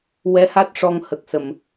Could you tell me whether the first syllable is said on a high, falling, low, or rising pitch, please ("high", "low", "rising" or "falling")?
rising